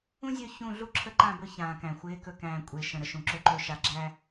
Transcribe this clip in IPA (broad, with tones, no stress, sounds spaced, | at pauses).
ũ˦ zʲ ɵ˦˨ ç ũ˦˨ ɮ u˦ ǁʰ ə˦ ǃ ã˦˨ b ɵ˦˨ ç ãː˨ k æ̃˨ xʷ ɪː˨˦ k ɵ˨ k æ̃ː˨ kʷʼ ɪː˨ ʃ ə̃˨ ɾ ə˨ ʃ ũ˨ ǁ ɵ˨ ǃ ɵ˨ ʃ a˨ ɡ͡ǁ æ˦